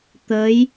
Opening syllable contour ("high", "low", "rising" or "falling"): rising